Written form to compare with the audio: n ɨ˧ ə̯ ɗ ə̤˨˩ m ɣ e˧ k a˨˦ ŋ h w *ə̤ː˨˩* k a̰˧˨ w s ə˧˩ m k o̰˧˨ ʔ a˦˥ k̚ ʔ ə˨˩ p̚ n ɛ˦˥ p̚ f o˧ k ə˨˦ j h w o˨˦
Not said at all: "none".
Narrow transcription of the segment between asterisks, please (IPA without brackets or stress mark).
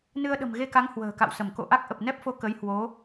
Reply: ə̤ː˨˩